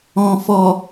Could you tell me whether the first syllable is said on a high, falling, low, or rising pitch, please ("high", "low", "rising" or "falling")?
low